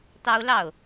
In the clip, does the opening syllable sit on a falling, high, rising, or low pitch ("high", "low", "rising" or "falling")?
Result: high